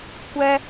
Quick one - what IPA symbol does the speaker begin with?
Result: kʷ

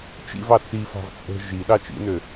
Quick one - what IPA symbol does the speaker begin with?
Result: t͡ʃ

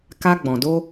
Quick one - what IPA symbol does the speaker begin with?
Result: k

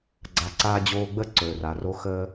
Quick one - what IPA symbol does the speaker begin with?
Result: ɡ͡ǀ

